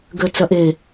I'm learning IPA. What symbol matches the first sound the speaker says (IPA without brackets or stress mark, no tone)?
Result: ɡ